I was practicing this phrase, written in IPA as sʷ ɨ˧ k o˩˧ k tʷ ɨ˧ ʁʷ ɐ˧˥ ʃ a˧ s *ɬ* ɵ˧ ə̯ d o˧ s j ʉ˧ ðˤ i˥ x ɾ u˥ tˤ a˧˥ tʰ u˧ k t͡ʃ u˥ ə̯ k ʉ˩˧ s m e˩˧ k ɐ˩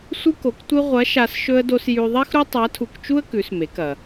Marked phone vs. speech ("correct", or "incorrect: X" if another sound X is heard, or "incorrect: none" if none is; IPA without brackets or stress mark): incorrect: ʃ